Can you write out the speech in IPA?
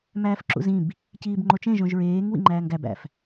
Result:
m æː f ǁ ṵ z ĩ b | c iː b ŋ͡ǃ o t͡ʃ ẽ ʒ õ ʒ ɹ eː ŋ w ḭ ŋ͡ǃ æː ŋ ɡ æ b æ̰ f

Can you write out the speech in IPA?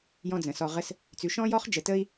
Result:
j ɔ̃˦ d͡z ə̃˩ s ɔ˨ ʁ ə˦ s | t͡s ʉ˨ ʃ ɔ̃˥ j ɔ˥ χ d͡ʒ ə˨ t ə˥ i̯

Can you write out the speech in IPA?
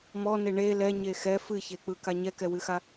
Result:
m ɔ n e ɳ e l ɛ ɲ e x ɛ f ɨ ç e k͡p ɯ k a ɲ ɛ k ɛ w ɨ x a

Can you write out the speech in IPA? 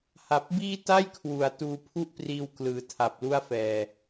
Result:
h a˨˩ p̚ b iː˥˩ t a˥˩ j kʰ w u˩˦ a̯ t uː˧ pʰ u˥˩ ʔ p r iː˧ w k l ɯː˨˩ tʰ a˨˩ p̚ l u˥˩ a̯ f ɛː˨˩

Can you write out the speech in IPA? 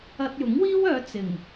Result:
ɐ˧ t̚ j ʊ˨˥ ŋ w iː˥ w œː˨˧ t͡s ɪ˨˩ ŋ

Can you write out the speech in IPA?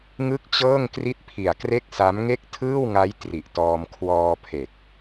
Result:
ŋ ɯ˥˩ k̚ t͡ɕ ɤː˥˩ ŋ k r i˥˩ t̚ pʰ i˨˩ a̯ k r e˥˩ k̚ s a˦˥ m ŋ e˥˩ k̚ tʰ ɯː˥˩ w ŋ a˦˥ j t r i˨˩ ʔ t ɔː˧ m kʰ w ɔː˧ pʰ e˨˩ k̚

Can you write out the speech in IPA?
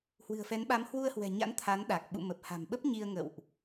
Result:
h w ɨ̤˨˩ ə̯ f ɛ˨˦ n ɓ a˨˦ m h w u˧ ə̯ h w ɛ̤˨˩ ɲ a̰˧˥ n t̪ʰ a˨˦ n ɗ a˨˩ k̚ ɓ ṵ˧˨ m ə˨˩ p̚ h a̤˨˩ m ɓ ə˦˥ p̚ ɲ i˧ ə̯ ŋ ə̰˧˨ w ʔ

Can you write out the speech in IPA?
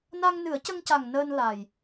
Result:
n a˧ ŋ n ɨ˨˩˦ ə̯ c ə˧ ŋ c a˨˩ ŋ n əː˧ n l a˨˩ j

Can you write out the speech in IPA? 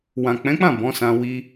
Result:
w ã˨ k͡p ɛ̃˨˦ k͡p ã˦˨ b ɔ̃˨˦ s ã˧ w i˧

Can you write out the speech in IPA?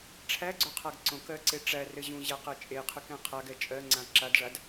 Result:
ʈ͡ʂʰ æ ɡ͡ǀ o qʰ a ɡ ǀ õ k ɜ ǀ e ʈ͡ʂ æ r ɘ ʑ ũ ʑ æ q ɜ t͡ʃʼ e qʰ ɯ k ɛ̃ qʰ a ɡ ɛ t͡ʃʼ ɜ ŋ͡ǀ ã ǁ a d ʐ a d

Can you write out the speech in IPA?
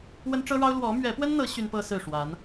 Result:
w ə˥ n ʈ͡ʂ ɤ˥ ɻ ɑ˥ ʊ̯ l w ɔ˧˥ m ɥ ɛ˧˥ p w ə˥ n n̪ ɤ˧˥ ɕ y˥ n p ɤ˥ s ɹ̩˥˩ ʂ w a˧˥ n

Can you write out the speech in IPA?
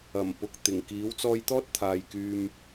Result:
ɐ˨˩ m p ʊ˨ k̚ t̪ ɪ˨˩ ŋ k iː˨˥ w t͡s ɔː˧ j t̪ ɔː˥ t̚ t̪ʰ aː˨ j k yː˧ m

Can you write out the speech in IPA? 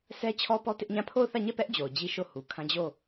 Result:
s ɛ˦ t͡ɕʰ ɔ˦ p ɔ˦ t ɪ˦ ʔ ɲ ã˦˨ pʰ o˦˨ ʊ̯ θ ä˦˨ ɲ ɛ˦˨ p ɛ˦ ʔ d͡ʑ o˨ ʊ̯ d͡ʑ i˦ ʃ o˦˨ h u˨ kʰ ã˦ d͡ʑ o˦˨

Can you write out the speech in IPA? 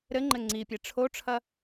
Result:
ɾ ɘ ŋ͡ǃ ɘ ŋ͡ǀ i pʲ e ʈ͡ʂʰ o ʈ͡ʂʰ ɐ

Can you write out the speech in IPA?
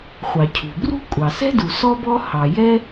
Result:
χʷ ɑ˩ cʰ ṳ˩ b r ṳ˥ kʷʼ ɑ˩ s ɛ̤˥ d u˩ s ɔ˥ b ɔ˥ h ɑ˩ j ɛ˥

